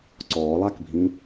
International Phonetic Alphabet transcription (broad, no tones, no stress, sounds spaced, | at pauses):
ǀ ɔː lˠ a k bʱ ĩ